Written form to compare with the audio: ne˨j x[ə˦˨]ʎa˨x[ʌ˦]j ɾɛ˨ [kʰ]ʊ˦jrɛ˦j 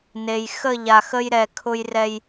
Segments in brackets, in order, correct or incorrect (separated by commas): correct, incorrect, correct